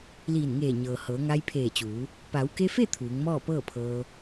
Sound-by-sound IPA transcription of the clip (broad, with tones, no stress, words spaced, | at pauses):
liː˧˩nŋeː˧˩ɲɤː˩ hɤː˩˧ŋa˧jpʰeː˧˩t͡ɕuː˩˧ | pa˩˧wke˧fe˥˨ t̪ʰuː˩˧ŋmɔː˥˨ pɤː˥˨pʰɤː˧